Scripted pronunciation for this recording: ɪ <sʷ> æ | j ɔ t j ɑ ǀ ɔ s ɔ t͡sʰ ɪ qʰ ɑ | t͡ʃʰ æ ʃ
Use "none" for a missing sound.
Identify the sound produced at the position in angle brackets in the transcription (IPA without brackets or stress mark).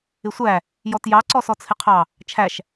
sʷ